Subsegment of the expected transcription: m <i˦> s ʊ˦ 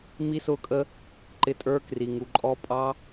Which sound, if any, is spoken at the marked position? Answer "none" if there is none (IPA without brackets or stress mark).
i˦